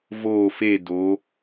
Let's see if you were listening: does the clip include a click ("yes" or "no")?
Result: no